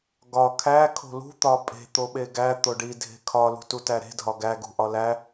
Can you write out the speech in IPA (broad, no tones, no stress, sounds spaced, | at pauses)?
ɡ ɒ kʰ æ kʰ o̤ l ṳ t̪ ɒ pʼ e̤ t̪ o ɓ e ɡ æ t̪ o ɖ i dʱ e̤ kʰ ɒ l ṳ t u t æ ɾ e̤ dʱ ɒ ɡ æ ɡ ṳ ʔ ɒ l æ